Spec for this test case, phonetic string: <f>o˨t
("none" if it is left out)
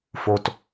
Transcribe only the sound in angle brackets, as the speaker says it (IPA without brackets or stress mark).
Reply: f